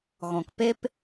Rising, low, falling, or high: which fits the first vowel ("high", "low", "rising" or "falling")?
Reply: low